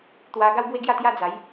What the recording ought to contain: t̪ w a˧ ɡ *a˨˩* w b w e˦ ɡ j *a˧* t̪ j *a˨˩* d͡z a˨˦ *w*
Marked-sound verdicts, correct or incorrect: incorrect: a˦, incorrect: a˥˧, incorrect: a˦, incorrect: j

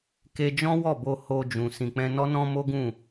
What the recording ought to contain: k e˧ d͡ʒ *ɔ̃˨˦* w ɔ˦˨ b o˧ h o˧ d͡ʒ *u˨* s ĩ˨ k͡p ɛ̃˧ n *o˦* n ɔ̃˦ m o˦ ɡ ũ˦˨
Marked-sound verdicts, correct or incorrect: incorrect: ɔ̃˦, incorrect: ũ˨, incorrect: ɔ˦

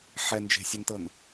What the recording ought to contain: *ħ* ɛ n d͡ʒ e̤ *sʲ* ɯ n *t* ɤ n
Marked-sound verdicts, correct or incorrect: correct, correct, correct

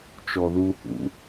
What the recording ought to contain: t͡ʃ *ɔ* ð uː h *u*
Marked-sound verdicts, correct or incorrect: correct, incorrect: ṵ

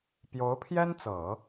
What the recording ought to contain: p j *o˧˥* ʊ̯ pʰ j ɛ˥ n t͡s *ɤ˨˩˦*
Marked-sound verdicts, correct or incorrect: correct, correct

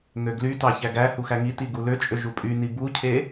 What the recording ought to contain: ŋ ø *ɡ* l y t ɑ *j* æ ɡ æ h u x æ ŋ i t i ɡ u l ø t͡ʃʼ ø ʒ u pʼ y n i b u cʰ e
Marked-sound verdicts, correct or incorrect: correct, incorrect: ç

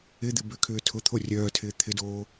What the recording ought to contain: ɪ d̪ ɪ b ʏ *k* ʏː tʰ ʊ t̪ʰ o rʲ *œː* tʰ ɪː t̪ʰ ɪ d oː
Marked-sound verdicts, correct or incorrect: incorrect: kʰ, correct

